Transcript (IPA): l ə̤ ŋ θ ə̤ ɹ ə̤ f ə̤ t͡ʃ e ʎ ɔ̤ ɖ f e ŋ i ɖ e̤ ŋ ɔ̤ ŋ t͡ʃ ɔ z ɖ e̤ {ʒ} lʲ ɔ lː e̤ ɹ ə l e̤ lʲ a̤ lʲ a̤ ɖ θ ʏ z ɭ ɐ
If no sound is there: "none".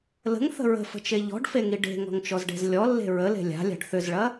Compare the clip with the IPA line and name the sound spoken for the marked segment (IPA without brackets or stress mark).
z